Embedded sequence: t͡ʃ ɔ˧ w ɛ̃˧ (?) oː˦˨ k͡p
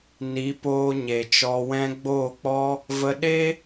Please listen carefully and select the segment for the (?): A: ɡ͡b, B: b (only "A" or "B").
A